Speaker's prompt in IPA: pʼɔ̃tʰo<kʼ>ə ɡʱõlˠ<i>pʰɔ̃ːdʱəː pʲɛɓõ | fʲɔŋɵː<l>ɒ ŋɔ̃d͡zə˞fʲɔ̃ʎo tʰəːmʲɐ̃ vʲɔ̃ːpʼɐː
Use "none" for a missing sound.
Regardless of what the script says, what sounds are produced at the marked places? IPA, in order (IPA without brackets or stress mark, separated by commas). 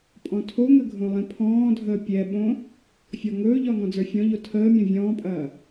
ŋ, ĩ, ʎ